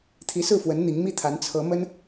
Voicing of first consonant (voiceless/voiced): voiceless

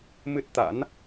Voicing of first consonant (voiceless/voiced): voiced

